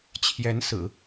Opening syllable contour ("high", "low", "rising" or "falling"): rising